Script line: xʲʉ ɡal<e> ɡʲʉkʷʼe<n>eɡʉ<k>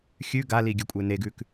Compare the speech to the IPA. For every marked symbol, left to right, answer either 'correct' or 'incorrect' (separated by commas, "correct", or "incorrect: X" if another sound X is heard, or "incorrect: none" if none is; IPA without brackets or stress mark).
incorrect: i, correct, correct